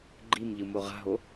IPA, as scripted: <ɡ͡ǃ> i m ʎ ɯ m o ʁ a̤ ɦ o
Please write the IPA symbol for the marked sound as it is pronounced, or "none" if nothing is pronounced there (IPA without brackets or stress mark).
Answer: ɡ͡ǃ